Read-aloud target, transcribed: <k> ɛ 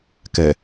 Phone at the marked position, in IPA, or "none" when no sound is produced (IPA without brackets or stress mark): k